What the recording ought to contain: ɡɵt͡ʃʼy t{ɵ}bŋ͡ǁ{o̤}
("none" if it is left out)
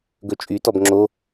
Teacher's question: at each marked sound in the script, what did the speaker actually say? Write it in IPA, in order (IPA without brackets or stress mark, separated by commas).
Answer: ɔ, o